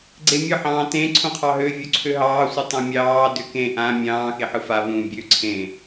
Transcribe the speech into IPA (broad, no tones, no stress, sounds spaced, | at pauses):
ɡ͡ǀ e mʲ ɯ ħ ɑ̃ː t ẽ ǀʰ ũ qʰ ɑ ɦ ø vʲ u ǀʰ ø ɦ ɑː sʷ ɯ tˤ ã mʲ ɑː d ø k ẽ ʔ ã mʲ ɑ̃ː x e ħ ɯ f a v ũː bʲ ø ǀʰ ẽ